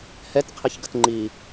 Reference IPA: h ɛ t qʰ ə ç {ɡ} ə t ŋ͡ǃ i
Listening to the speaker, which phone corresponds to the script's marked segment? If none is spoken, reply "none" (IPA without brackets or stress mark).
ɡ